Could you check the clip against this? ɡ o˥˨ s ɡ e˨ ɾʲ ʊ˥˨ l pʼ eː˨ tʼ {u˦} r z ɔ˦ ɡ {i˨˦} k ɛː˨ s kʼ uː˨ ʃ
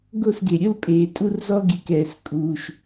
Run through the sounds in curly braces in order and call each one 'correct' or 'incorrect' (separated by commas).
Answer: correct, incorrect